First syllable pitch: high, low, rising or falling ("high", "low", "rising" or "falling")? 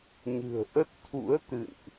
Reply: low